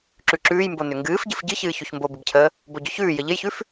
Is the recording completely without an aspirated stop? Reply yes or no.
no